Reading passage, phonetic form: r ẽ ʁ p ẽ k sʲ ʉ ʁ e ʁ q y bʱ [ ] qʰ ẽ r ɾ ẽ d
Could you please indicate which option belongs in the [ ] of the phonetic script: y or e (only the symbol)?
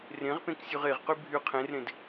y